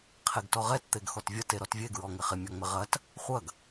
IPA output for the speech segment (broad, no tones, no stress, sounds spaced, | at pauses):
qʰ e ɡ t ɔ ʁ ɛ t t̪ e ɡ x ɔ t vʲ ɐ t e ɾ ɔ t vʲ e ɡ ɹ ɔ ŋ ɪ χ ɪ mʲ ɔ ŋ͡m ɪ ʁ ɐ t | χʷ ɐ ɡ